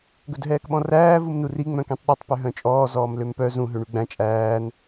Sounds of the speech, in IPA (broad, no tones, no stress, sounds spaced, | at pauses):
ɡ ɵ d ɦ ɛː k ɓ ɔ̃ r æː v u m n u r i ŋ͡m œ̃ k ĩ tˤ ɗ ɵ tˤ p ø ɦ œ̃ t͡ʃʼ ɔː z ɔː m l ø m p œ z ũ ɦ ø ɳ y ɡ͡b æ̃ t͡ʃʼ æː n